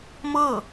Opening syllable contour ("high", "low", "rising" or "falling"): falling